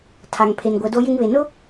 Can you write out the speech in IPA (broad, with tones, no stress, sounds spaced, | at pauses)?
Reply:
tʰ a˨ ŋ pʰ e˨ n ɡʷ ɛ˨ d o˦ j ɪ˦ ŋ β e˨ n ʊ˦